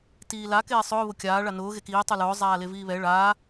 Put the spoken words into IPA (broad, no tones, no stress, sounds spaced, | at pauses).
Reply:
t iː l a k eː sˤ ʊː β ʊ kʲ aː ɭ a n ʊː ɣ e k iː tˤ u l ʊː zˤ aː l e v iː β ɛ ɭ aː